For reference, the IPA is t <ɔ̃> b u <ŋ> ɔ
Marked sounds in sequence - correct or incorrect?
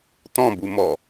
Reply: correct, incorrect

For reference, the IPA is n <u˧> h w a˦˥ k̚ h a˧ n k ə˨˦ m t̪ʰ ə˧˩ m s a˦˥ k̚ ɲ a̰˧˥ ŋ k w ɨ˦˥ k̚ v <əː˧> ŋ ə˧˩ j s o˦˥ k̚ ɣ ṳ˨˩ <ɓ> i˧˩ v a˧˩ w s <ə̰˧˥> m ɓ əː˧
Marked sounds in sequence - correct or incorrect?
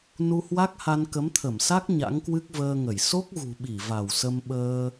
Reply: correct, correct, correct, incorrect

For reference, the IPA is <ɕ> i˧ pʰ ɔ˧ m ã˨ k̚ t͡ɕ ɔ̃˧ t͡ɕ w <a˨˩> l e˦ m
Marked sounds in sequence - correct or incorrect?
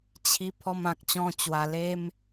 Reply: incorrect, correct

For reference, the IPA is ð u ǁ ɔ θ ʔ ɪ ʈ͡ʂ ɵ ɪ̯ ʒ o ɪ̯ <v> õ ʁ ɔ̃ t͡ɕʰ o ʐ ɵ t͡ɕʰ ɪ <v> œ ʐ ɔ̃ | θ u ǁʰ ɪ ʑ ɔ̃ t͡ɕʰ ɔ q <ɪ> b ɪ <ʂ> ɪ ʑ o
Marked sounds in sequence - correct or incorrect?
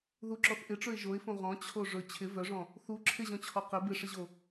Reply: incorrect, correct, correct, correct

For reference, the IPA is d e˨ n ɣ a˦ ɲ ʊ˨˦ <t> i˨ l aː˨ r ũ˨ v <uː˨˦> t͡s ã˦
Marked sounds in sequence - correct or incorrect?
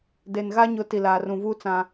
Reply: correct, incorrect

